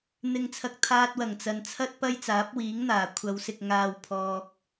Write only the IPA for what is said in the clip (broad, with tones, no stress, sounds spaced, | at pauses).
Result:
n̪ ɪ˨ ŋ t͡sʰ ɐ˨ k̚ t̪ʰ aː˧ t̚ w ɐ˨˩ ŋ t͡s ɐ˨ n t͡sʰ ɐ˥ t̚ p ɐ˥ j t͡s aː˨˥ p̚ w iː˨˥ ŋ n̪ aː˨˩ kʷʰ ɐ˨˧ w s ɪ˨ k̚ ŋ aː˨ w pʰ ɔː˨ k̚